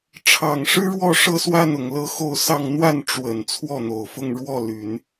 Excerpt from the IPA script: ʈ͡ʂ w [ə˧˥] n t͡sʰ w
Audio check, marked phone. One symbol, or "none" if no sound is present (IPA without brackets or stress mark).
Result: ə˨˩